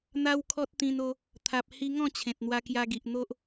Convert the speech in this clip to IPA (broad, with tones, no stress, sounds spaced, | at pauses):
n̪ a˦ w kʰ ɔ˦ t̚ t̪ ĩ˧ n o˧ | t̪ʰ a˨ p̚ h i˧ ŋ ɔ̃˥˧ t͡ɕʰ ẽ˨ t̚ n̪ w a˧ k j a˧ ɡ i˨ ʔ n̪ o˦ ʔ